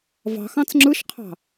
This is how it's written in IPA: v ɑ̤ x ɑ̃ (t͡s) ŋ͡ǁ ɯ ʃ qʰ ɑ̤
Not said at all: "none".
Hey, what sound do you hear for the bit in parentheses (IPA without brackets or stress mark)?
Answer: t͡s